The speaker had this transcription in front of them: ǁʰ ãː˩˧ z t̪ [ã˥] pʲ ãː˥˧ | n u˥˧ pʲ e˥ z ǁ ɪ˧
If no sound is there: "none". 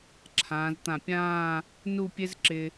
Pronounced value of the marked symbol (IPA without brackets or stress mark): ã˧˩